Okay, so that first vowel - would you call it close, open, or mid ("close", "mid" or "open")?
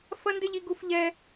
open